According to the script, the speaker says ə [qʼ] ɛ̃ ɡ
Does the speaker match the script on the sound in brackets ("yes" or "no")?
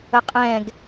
yes